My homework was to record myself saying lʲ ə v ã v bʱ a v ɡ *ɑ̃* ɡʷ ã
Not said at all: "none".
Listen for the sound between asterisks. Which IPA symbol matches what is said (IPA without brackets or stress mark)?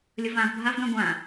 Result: ã